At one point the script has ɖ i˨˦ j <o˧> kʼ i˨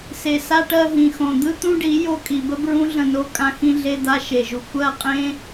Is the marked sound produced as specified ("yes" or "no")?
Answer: yes